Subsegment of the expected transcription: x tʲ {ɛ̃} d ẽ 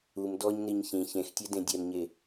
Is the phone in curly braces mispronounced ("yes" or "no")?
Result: yes